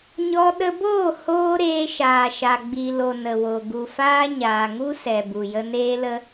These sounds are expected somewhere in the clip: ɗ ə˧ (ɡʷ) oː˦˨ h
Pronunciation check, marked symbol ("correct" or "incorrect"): incorrect